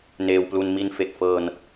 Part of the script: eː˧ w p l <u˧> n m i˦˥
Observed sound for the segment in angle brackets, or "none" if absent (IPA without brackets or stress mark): u˧